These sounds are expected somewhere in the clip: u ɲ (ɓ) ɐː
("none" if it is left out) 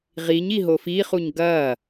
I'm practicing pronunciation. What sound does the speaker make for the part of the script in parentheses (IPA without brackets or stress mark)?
ɡ